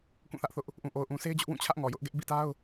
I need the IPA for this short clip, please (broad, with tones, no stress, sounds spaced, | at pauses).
k ũ˦˨ θ ä˦ ʔ θ ʊ˦ ʔ | ʔ ũ˨ ʔ o˨ ʊ̯ ʔ ũ˨ sʰ e˦ ɪ̯ d͡ʑ ʊ˦ ʔ w ũ˦˨ t͡ɕʰ ä˦ ʔ ŋ ɔ˨ j ʊ˦ ʔ ɡ ɛ˦ ʔ b ḭ˦˨ t a˦ ʊ̯